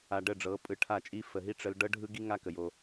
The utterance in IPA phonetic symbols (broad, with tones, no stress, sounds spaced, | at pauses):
a˨ ɖ ə˦˨ ɖ͡ʐ ɤ˨˦ pʼ ɯ˨ ʈʰ a˦˨ t͡ʃʼ i˦ f ə˨ ɦ i˦ ʈ͡ʂ ə˦ l ɖ ɤ˦ ɖʱ ɯ˦ ɡ i˦ ŋ a˦ k ə˨ j o˦